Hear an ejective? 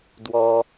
no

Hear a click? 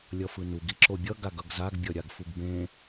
yes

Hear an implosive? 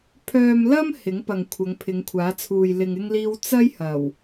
no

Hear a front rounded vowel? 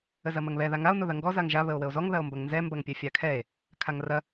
no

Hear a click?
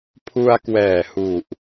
no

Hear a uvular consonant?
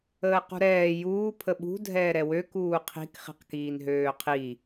yes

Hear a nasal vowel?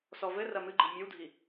no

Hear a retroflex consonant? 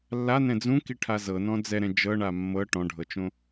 yes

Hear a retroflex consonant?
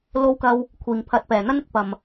no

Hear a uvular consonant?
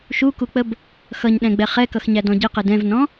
yes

